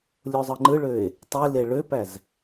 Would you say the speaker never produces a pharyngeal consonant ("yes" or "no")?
yes